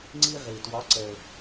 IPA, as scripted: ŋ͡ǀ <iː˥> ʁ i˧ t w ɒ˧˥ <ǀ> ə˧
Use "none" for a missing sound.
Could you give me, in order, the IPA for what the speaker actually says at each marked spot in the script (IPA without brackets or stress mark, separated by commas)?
i˥, ǀ